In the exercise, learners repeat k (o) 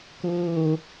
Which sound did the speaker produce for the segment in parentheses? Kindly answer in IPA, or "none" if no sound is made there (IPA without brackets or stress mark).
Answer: oː